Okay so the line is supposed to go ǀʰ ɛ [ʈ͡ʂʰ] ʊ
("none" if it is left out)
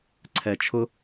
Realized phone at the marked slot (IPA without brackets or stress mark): t͡ʃʰ